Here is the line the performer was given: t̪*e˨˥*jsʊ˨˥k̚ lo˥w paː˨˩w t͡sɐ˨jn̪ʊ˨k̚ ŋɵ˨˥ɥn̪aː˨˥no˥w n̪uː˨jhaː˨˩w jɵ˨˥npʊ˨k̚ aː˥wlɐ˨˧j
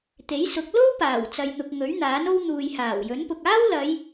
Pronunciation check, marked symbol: correct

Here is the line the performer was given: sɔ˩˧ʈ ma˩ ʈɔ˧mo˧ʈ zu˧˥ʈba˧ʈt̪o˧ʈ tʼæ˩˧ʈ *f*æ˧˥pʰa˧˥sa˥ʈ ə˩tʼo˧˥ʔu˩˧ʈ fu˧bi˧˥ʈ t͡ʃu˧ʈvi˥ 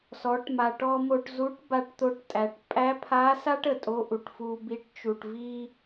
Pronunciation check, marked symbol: incorrect: pʼ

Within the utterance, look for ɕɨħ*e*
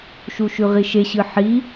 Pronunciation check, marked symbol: incorrect: i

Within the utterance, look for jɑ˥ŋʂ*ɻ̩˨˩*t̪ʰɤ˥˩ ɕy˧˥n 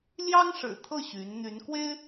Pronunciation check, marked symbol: correct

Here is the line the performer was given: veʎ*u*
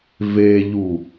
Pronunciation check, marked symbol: correct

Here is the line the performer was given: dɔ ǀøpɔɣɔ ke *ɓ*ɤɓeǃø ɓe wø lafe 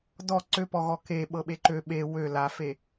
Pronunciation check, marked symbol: correct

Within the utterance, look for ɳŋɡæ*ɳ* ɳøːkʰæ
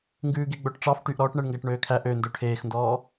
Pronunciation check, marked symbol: incorrect: ʈ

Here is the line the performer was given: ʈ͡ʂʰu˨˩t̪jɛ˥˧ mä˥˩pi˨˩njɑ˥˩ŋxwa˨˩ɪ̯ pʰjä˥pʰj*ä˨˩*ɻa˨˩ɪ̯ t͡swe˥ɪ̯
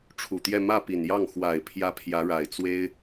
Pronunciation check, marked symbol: incorrect: ä˧˥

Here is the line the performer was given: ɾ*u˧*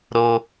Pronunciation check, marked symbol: incorrect: o˧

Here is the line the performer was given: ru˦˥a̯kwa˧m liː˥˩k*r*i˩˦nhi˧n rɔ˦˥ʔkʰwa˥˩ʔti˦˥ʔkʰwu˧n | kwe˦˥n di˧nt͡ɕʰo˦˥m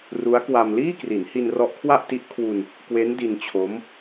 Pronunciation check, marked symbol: correct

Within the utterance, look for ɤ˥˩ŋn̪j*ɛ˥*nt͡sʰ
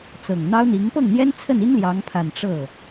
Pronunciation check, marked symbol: correct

